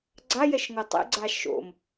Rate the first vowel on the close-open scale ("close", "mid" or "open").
open